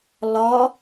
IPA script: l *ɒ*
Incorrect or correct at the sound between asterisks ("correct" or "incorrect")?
correct